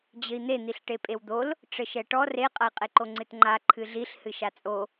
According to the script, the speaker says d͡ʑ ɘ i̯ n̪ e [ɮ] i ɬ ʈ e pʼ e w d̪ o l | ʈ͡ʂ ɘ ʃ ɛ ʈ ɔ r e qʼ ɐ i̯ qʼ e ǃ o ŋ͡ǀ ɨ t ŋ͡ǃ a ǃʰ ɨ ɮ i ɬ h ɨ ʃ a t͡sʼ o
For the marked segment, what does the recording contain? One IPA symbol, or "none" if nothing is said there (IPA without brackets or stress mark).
n̪